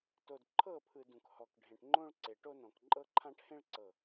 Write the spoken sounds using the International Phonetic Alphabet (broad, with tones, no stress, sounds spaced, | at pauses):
t o˨ d ǃʰ ɤ˦˨ pʰ ɯ˨ d ũ˨ k h ɔ˨ k ɖʱ ẽ˨ ʈ ŋ͡ǃ õ˦ ɭ ǀ e˨ ʈ o˦ n ɔ̃˨ k ǃʼ ɤ˦ ǃʰ ã˦ ʈ h ẽ˦ ɭ ǀ ɤ˨